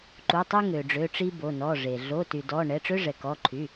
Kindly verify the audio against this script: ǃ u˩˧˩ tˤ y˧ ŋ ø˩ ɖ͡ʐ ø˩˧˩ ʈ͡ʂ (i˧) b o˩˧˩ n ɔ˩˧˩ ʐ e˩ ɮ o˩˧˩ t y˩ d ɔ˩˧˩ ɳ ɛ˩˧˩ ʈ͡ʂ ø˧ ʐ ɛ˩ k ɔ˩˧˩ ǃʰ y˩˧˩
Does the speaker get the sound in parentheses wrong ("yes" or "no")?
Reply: no